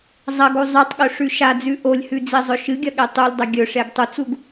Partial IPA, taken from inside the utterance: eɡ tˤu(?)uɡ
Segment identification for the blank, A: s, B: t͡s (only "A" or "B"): B